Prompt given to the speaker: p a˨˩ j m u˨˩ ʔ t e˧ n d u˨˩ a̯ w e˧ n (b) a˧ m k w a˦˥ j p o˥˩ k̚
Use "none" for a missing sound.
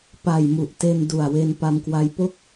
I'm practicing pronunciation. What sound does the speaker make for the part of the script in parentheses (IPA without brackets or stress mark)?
p